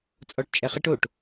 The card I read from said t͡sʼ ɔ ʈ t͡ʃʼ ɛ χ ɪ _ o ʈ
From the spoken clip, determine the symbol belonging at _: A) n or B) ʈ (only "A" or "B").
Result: B